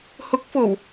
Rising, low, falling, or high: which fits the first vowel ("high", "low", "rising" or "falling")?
rising